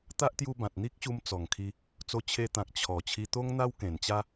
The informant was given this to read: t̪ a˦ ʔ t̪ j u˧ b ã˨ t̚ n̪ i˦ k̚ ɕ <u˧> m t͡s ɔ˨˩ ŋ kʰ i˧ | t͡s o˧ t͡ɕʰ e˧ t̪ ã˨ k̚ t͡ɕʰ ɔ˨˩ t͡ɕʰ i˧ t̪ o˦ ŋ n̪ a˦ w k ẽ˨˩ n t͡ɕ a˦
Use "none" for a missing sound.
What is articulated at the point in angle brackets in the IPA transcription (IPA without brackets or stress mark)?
u˧